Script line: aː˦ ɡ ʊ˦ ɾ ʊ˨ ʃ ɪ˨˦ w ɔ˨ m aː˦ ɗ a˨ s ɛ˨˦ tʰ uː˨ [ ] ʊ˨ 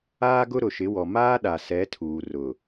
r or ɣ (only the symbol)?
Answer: r